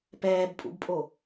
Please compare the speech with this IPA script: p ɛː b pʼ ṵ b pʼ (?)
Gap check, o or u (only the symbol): o